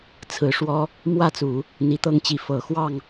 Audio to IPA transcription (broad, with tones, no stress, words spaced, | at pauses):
t͡sʰɹ̩˨˩ʂwɔ˥ | mwä˥˩t͡su˨˩˦ | n̪i˧˥t̪ɤ˥ŋt͡ɕi˧˥ fɤ˨˩xwɑ˥˩ŋ